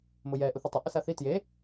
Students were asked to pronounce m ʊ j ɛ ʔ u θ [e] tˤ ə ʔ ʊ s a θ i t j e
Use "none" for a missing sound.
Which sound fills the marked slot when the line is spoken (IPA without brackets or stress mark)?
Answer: i